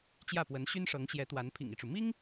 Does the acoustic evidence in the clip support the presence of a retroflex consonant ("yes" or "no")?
yes